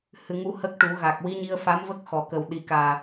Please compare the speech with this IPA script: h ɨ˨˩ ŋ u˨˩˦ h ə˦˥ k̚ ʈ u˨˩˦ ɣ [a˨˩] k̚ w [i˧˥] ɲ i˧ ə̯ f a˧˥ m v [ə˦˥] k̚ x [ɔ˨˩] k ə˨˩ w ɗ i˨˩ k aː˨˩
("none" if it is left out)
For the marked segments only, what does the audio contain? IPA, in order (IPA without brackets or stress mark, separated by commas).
a˨˩, i˧˥, ə˦˥, ɔ˨˩